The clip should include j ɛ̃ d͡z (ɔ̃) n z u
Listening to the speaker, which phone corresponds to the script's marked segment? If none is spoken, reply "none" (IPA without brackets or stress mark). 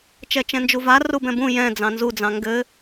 ɑ̃